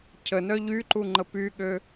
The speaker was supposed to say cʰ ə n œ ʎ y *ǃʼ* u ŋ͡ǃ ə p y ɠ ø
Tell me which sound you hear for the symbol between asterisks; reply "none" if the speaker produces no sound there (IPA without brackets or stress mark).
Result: ǃ